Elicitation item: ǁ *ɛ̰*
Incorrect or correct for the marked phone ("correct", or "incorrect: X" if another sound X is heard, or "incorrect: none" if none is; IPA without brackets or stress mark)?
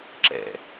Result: correct